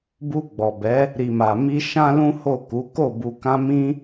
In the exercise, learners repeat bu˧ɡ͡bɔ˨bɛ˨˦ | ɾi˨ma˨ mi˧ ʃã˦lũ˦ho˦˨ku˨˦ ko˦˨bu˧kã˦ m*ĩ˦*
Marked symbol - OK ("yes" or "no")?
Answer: yes